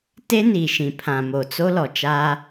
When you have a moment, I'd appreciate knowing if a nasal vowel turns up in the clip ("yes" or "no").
yes